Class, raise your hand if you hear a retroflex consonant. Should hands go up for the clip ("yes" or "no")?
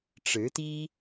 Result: yes